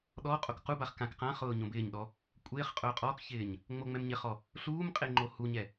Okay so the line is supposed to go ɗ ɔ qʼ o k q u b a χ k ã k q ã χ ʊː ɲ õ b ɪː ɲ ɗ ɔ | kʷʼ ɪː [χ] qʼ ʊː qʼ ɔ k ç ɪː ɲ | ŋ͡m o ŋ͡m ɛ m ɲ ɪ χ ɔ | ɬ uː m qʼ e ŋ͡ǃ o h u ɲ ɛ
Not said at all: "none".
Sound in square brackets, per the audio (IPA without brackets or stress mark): χ